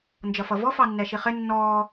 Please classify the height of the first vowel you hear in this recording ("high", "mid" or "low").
mid